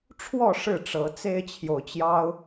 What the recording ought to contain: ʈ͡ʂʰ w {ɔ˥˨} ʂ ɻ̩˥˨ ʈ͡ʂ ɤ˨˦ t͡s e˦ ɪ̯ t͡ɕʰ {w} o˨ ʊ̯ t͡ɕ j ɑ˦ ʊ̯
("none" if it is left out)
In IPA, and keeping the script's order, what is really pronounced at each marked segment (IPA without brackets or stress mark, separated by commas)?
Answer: ɔ˥˨, j